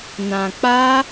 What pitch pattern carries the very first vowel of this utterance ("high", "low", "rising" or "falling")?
low